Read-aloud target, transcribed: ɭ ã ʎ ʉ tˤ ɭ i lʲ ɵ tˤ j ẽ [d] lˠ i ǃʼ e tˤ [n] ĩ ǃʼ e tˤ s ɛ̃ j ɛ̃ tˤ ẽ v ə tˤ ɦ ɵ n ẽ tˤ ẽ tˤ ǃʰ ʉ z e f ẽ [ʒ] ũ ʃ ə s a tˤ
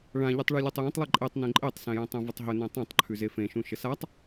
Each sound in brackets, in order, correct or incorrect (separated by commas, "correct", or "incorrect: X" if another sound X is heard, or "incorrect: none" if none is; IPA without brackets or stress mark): incorrect: tˤ, correct, incorrect: ʃ